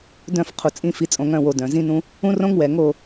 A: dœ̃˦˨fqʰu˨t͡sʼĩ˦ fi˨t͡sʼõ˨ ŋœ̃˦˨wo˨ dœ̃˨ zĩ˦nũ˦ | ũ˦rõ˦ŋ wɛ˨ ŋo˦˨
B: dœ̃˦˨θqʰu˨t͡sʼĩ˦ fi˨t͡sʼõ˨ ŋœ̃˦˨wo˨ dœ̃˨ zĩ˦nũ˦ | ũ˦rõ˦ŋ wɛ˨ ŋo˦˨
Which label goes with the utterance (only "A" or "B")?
A